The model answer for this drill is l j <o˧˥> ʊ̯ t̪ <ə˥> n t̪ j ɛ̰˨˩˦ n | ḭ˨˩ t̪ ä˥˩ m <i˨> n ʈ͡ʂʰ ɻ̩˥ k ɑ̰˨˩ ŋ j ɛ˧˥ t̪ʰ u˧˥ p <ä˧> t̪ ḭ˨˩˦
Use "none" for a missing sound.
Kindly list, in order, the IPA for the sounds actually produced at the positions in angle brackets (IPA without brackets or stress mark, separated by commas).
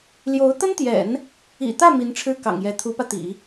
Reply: o˧˥, ə˥, i˧˥, ä˧